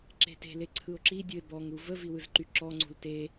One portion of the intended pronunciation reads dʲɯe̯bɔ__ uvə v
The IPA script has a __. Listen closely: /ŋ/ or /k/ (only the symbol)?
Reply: ŋ